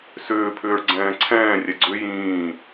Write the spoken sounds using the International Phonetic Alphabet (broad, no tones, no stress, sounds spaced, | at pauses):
s ʏː pʰ ʏː ɭ ɡ͡ǀ ɛ̃ː ǀʰ ɛ̃ː rʲ ɛ ɡ͡ǀ ʏ j ĩː